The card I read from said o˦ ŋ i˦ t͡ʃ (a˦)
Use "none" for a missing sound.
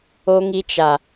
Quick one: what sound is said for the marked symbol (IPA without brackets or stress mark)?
a˦